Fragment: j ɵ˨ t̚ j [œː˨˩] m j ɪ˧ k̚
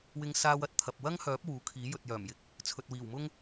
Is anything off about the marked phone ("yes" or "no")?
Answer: no